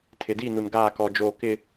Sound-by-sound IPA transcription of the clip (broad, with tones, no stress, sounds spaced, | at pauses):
tʰ ɪ˨ d i˦˨ n u˨ n ɡ aː˦˨ k ɔ˨ d͡ʒ oː˨ k ɪ˦